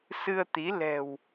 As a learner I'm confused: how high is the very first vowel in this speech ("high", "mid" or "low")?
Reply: high